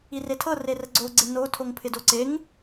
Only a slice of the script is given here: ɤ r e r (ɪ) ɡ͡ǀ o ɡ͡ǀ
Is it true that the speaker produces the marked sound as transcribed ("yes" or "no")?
no